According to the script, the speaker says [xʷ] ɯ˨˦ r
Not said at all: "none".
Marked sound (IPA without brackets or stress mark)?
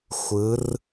xʷ